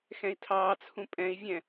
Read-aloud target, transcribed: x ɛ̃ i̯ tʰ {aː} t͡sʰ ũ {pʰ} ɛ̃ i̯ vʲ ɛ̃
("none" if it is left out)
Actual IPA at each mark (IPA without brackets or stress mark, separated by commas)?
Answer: ɑː, pʼ